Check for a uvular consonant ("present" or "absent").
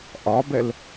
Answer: absent